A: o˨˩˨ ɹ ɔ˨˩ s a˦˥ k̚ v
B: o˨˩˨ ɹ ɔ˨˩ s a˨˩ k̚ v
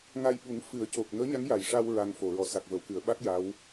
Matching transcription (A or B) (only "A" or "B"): B